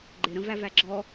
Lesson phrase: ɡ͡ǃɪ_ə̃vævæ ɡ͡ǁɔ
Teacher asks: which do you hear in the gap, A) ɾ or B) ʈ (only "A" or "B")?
A